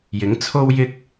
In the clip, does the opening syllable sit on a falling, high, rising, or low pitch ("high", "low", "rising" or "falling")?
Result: rising